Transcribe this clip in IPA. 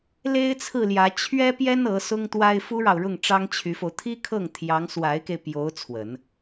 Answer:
l e˥ ɪ̯ t͡sʰ ɹ̩˥˩ l j ä˧˥ t͡ɕʰ ɥ ɛ˥ p j ɛ˥ n ɤ˧˥ s ʊ˥ ŋ t̪ w a˥ ɪ̯ f u˥ ɻ ɑ˨ ʊ̯ ɻ ʊ˥˩ ŋ ʈ͡ʂ ɑ˥ ŋ t͡ɕʰ y˧˥ f o˧ ʊ̯ t̪ʰ i˥ kʰ ɤ˥˩ ŋ t̪ʰ j ɑ˧˥ ŋ s w a˧˥ ɪ̯ k e˧ ɪ̯ p j o˧˥ ʊ̯ t͡sʰ w ə˨˩˦ n

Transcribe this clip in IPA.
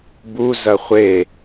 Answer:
b u z ɐ χʷ e

